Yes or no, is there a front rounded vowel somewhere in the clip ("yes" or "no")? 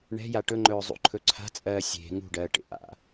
no